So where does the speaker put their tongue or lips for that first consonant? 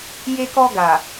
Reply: palate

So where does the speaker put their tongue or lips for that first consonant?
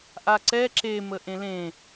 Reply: throat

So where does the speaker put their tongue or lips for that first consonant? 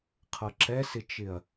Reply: uvula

